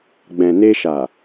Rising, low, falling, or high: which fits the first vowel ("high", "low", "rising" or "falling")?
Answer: low